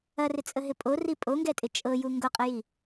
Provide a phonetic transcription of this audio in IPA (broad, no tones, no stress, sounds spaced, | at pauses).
ɐ r ɪ t͡sʼ ə ɦ ɪ pʼ o r i pʼ o ŋ ɡ ɛ tʼ ɪ t͡ʃʼ ɤ j u ŋ ɡ o qʼ ə j i